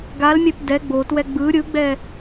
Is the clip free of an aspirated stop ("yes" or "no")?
yes